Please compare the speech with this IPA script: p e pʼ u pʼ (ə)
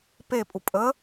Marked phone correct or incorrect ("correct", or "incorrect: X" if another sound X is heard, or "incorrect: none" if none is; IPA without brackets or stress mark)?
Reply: correct